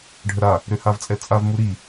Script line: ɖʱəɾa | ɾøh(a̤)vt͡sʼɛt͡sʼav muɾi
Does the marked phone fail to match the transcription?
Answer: yes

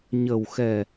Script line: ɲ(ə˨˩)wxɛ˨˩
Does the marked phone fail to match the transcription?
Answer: no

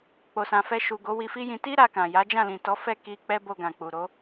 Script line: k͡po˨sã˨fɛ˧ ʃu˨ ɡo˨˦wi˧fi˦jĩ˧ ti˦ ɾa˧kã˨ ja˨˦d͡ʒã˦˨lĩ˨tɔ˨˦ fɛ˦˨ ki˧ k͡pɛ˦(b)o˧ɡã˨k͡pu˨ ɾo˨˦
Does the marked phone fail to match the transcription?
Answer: no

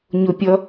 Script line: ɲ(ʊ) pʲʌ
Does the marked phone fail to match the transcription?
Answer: no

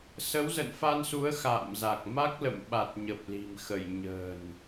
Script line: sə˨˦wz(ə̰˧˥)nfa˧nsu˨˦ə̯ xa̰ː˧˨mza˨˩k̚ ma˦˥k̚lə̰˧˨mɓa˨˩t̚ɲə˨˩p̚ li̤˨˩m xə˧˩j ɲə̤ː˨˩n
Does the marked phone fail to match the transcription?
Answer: yes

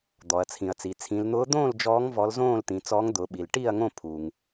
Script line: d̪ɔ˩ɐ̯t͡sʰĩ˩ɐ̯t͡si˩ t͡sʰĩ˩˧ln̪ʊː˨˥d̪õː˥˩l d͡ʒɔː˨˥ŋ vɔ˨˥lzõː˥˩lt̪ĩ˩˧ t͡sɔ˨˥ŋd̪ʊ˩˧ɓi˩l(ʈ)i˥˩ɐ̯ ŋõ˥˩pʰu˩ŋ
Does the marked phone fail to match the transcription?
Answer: no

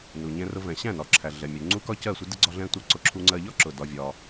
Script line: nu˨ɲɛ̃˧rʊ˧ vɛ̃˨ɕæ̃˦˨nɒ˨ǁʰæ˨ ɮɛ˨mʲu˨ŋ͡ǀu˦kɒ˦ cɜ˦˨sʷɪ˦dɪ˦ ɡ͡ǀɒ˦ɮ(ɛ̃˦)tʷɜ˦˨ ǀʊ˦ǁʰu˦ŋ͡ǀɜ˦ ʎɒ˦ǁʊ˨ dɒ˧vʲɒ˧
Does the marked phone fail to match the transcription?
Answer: no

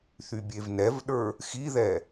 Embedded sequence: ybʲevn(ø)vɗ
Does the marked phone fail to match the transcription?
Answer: yes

